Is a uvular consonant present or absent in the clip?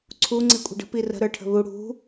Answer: absent